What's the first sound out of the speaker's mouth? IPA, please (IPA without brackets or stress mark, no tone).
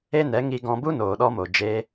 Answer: e